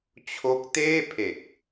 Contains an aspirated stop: yes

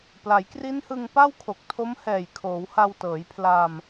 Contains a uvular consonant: no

